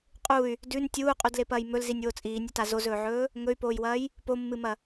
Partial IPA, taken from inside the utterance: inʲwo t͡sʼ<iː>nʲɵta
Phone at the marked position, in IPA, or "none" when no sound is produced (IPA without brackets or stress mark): iː